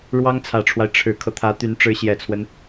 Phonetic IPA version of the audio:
ɻwɑ˥ŋt͡sʰä˨˩ʈ͡ʂʰwa˦ɪ̯ ʈ͡ʂʰɻ̩˨˩kʰɤ˦t̪ʰä˧˥t̪y˧˥n ʈ͡ʂɻ̩˧˥ɕjɛ˨˩t͡sʰwə˦n

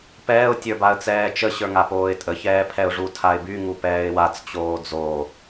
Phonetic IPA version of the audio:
pɛːʊ̯ tʲə˞baə̯t͡sɛːt͡ʃə ɕə˞ŋapoːɪ̯tʼə çɛːpʰɛʊ̯ʐu tʰaɪ̯by ŋupɛːɪ̯wat͡s t͡ɕoːd͡zo

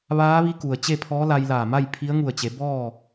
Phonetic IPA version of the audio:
ʋaː˧˥ʋi˧˥ku˩ə̯ t͡ɕe˥˨pʰɔː˧˥la˧j laː˧˩ma˥˨jpʰi˧˥ə̯ ŋu˧˩ə̯t͡ɕe˩˧ bɔː˥˨

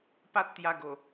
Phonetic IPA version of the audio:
pa˦t̚t̪ja˧ɡo˨˩

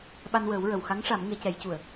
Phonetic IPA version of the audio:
ɓa˧nwəː˨˩˦wɹə˨˩˨w xa˧˥ŋʂa˨˩˦m ŋe˨˩˦cɛ˨˩˦jcu˨˩˨ə̯

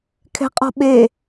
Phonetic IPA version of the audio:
kʰɛ̤qʼɔ̤ɓe

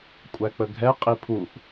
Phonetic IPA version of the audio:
kʷʼæk͡pəɡʱɛ qʼipʰuʔ

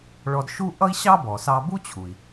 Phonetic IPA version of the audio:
ɭɔ˧dʃu˥ ʔʌ˥i̯ɕɑ˥bɔ˩ sɑ˧ bu˥t͡ɕʰu˩i̯

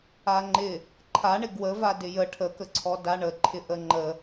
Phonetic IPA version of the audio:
aŋ͡ǃɪ | ǃʰaɳɪ ɡwə vadɪjə ʈʰəkəǀʰɔ daɳəǃʰɪ ʔəŋ͡ǃə

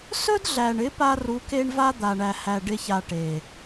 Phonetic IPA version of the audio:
sɵ˦dɮæ˨ɳɪ˨˦ pa˦ru˨˦ ke˦ɳva˦d̪a˨ɳæ˨ hæ˨ɖɪ˧ça˨ ʈe˨

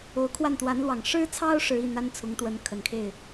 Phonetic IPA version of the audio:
o˧˥ʊ̯kʰwa˥˩nt̪wa˧˥nlwɑ˨˩ŋ ʂɻ̩˥t͡sʰɑ˥ʊ̯ ʂɻ̩˧˥i˥˩n̪a˥n t͡sʰʊ˧˥ŋt̪wə˧˥nkʰə˨˩nkʰe˥˩ɪ̯

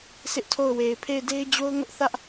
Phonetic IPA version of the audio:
sɪ˦ʔtʰo˦˨ʊ̯ we˨ɪ̯pʰe˦˨ɪ̯de˦ɪ̯ d͡ʑo˦ʊ̯ŋʊ˦ʔθä˦ʔ

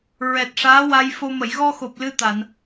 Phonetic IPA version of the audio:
ɹɛ˨˩t̚ʂaː˧˥wa˧jfo˧ mə˨˩˨jɣɔ˧xo˨˩p̚ lɨ˧t̪a˨˩˨n

